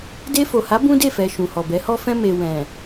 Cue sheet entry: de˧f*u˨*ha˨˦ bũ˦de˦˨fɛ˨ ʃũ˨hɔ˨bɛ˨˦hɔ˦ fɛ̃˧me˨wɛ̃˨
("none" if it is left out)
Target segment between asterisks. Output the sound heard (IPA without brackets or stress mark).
o˨